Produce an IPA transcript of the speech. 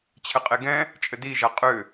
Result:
t͡ɕʰ ɘ qʼ e ɡ ɛ̃ | t͡ʃʼ ɘ d i ʒ a qʼ ʏ

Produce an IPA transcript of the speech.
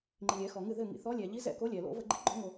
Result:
ŋ͡ǃ i˩ lʲ ɛː˧˩˧ x ɔ˩ ŋ ɨ˧˩ ð ɘ˧˩ ŋ ḭ˩ θ ɔ˨˦ lʲ ɛː˩ ʎ i˨˦ z ɛ̰˧˩ k o˨˦ lʲ ɛ˩ l o̰˧˩˧ v ə˧˩˧ ɡ͡ǃ i˨˦ ɡ͡ǃ ɔ˧˩˧ ŋ o˩

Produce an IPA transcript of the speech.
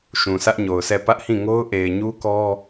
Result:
ʃ ũ˨ sʰ ä˦ ʔ ɲ o˨ ʊ̯ sʰ ɛ˦˨ p ä˦ ʔ h ĩ˦˨ ŋ o˦ ʊ̯ ʔ e˨ ɪ̯ ɲ u˦ k ɔ˦

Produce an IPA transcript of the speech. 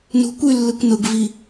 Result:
n ṳ kʷ y lː ɯ kʷ n ʊ ɡ v i

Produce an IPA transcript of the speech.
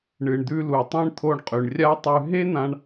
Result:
ɳ ɨ˩ ɳ d̪ ʉ˧ l u˩ tˤ ẽ˥ ɳ t̪ʰ o˧ ɳ qʼ ʉ˩ ɳ rʲ a˥ tˤ ʉ˧ ɦ e˥ n̪ ã˧ ɳ

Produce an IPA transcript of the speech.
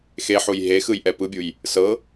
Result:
x e ħ u j ɦ e x ɯ j ʔ ɛ p ɯ bʲ u j | s ɤ

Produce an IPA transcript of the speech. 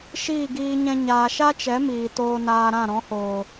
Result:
ʃ iː˦˨ ɡ iː˧ ɲ ɛ̃˧ ɲ aː˨ ʃ a˦ t͡ʃ ɛ˨˦ m iː˨ t oː˧ n aː˧ ɾ ã˦˨ ɾ ɔ̃˨˦ h oː˨

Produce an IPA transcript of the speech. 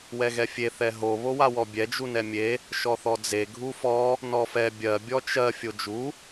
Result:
w ɛ ɣ ɛ fʲ e θ ɛ ɦ o β o w a w ɔ bʲ ɛ d͡ʒ u n ɛ mʲ e | ʃ ɔ θ ɔ d͡z e ɡʱ u f ɔ | n ɔ f ɛ bʲ ɜ bʲ ɔ t͡ʃ ɜ fʲ o d͡ʒ u

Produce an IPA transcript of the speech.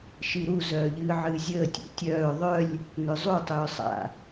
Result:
ʃ i ɾ u z œː ʎ ɨː ʕ ɨː zʲ əː tʲ ṵ tʲ œː ðˤ œ lʲ | n ʏ zˤ u tˤ ʏː sˤ a̰

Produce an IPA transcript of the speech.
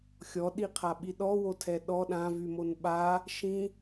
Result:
xʲ ɔ ɗ i qʰ a ɓ i ɗ ɔ w o tʰ ɛ ɗ ɔ ɗ ã v y m o n ɓ a | ʃ ĩ

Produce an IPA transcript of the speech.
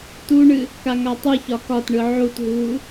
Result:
t u ɳ ɨ | k a ŋ a tˤ ɨ ç ɒ k ɒ t ɳ ɯ ʕ u t ɦ uː

